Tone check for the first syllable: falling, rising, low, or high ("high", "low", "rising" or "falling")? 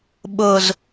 low